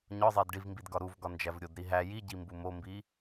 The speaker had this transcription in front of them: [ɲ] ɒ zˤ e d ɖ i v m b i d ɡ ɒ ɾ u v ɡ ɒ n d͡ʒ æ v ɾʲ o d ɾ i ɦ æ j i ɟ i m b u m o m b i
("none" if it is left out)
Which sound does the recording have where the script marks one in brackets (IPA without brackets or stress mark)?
ɲ